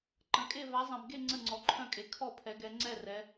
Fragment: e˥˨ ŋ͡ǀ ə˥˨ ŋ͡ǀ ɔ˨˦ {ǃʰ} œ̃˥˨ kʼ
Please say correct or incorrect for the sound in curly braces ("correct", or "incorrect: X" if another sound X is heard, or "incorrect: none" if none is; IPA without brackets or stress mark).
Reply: correct